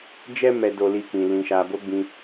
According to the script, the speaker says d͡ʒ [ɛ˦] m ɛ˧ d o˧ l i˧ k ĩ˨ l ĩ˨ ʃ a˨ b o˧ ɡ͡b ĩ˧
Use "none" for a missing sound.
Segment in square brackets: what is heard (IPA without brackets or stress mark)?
ɛ˦